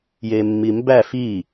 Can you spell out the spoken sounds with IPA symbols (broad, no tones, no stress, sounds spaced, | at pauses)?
j e mː i m b æ f i